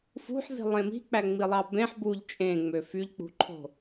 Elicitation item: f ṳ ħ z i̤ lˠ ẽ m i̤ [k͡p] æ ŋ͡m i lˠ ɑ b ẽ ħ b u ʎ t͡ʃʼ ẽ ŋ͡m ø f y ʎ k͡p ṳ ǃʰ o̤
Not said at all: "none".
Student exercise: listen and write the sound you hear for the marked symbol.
k͡p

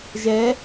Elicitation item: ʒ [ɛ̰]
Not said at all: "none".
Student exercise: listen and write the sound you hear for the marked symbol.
ɛ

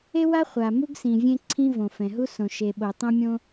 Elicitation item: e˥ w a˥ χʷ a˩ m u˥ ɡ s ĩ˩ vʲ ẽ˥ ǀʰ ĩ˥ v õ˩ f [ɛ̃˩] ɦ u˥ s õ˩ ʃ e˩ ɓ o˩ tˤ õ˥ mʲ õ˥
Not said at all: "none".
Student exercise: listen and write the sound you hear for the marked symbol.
ɛ̃˩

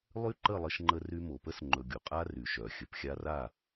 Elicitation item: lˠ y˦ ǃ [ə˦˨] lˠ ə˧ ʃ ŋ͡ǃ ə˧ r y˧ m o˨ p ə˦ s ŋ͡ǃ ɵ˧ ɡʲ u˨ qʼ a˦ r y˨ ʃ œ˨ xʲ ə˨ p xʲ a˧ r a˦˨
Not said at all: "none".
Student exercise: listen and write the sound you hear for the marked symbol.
ə˦˨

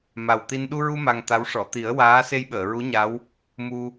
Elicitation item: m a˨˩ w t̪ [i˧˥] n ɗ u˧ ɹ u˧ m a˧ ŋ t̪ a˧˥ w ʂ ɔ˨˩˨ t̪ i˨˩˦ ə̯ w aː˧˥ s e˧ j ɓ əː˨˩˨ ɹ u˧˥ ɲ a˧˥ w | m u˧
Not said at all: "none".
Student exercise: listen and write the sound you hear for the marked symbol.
i˧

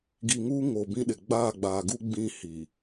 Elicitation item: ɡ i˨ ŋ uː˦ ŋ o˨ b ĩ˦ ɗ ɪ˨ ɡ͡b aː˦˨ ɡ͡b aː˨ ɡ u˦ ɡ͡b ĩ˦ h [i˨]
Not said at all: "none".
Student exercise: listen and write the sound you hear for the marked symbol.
i˨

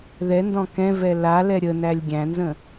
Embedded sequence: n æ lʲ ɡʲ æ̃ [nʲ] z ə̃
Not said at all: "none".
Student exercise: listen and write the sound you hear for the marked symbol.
n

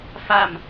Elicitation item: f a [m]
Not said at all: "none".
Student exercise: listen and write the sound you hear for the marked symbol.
m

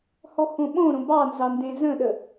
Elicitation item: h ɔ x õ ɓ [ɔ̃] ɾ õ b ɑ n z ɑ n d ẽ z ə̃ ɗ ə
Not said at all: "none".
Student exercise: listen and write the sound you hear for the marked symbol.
õ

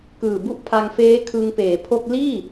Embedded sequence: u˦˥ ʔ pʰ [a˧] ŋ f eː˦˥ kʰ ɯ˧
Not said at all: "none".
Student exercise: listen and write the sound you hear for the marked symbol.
a˧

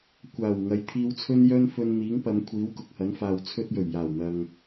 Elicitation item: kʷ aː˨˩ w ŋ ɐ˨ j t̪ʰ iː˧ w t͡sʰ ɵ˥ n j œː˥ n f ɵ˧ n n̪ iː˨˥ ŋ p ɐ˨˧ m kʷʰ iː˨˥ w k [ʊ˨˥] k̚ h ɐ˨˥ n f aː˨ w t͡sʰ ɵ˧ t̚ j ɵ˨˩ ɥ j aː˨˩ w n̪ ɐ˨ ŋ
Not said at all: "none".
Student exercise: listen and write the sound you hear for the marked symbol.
ʊ˨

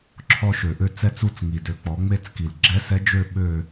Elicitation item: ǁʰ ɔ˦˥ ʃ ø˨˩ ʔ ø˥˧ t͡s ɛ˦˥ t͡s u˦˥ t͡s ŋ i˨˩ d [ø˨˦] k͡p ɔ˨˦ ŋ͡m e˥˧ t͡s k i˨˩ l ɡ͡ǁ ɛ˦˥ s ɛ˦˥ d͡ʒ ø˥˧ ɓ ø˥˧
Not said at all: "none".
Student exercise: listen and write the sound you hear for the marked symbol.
ø˨˦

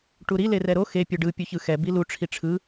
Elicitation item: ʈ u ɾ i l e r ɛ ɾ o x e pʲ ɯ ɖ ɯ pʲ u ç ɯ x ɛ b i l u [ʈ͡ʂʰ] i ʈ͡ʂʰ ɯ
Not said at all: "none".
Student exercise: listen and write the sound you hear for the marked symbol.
ʈ͡ʂʰ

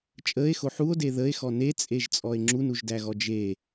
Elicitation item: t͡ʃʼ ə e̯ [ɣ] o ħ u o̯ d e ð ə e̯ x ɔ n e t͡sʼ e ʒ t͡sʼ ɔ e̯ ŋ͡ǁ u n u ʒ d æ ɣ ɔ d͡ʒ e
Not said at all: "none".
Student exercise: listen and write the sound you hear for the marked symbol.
x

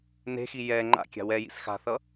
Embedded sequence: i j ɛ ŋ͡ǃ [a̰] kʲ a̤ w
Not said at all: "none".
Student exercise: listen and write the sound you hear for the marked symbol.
a̰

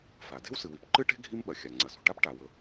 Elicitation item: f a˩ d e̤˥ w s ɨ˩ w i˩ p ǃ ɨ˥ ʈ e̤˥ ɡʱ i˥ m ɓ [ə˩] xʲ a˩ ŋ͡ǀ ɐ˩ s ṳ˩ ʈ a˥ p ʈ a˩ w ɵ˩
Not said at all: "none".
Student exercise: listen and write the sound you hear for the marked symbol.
ɐ˩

